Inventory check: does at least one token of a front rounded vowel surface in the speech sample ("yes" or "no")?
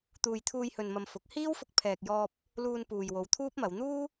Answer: no